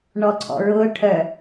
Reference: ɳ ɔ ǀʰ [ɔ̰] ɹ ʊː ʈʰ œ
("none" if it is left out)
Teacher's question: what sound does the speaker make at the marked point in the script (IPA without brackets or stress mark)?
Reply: ɔ̰